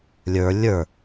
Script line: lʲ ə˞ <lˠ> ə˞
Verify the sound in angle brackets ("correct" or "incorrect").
incorrect